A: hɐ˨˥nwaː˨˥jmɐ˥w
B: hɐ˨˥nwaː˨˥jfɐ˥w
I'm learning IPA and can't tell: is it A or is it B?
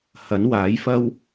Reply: B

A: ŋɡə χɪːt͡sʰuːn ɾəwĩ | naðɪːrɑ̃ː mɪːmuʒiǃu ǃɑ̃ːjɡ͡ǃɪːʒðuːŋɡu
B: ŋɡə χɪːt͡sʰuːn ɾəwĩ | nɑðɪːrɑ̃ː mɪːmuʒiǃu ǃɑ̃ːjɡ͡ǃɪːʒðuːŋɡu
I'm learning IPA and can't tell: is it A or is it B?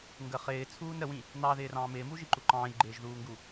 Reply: B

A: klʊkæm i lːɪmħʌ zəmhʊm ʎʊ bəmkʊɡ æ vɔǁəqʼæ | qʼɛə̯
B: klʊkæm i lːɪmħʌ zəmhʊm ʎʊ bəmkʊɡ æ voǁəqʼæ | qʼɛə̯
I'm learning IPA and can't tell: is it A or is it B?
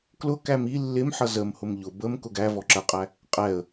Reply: A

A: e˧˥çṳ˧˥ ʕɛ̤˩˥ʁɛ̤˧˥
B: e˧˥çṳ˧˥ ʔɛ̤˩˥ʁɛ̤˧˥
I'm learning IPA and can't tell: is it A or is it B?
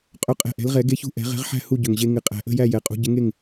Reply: B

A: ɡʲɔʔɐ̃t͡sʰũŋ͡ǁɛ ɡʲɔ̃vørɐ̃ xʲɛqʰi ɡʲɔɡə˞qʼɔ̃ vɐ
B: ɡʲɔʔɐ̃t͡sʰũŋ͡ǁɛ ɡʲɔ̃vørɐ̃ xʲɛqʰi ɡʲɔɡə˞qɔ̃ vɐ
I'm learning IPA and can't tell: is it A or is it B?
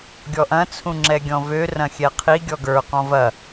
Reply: B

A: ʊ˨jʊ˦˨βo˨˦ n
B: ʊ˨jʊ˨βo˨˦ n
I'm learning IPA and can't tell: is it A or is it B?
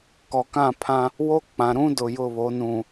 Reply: A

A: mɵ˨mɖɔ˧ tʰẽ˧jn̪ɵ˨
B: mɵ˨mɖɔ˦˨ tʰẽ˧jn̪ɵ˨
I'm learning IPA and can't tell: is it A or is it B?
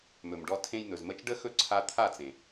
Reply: A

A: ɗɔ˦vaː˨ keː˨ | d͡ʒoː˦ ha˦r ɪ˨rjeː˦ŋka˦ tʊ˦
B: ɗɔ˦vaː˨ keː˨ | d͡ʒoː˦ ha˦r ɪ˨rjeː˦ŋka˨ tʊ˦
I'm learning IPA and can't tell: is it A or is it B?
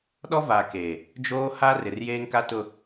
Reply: A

